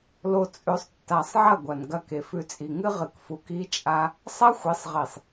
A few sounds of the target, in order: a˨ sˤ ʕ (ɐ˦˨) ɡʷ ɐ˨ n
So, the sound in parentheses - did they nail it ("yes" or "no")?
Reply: yes